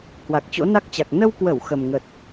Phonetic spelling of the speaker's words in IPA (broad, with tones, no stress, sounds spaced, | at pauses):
h w a˨˩ k̚ t͡ɕ o̰˧˥ n a˦˥ k̚ t͡ɕ a˨˩ k̚ n ə˧ w k w ə˧˩ w x ə˨˩ m ŋ ə˨˩ t̚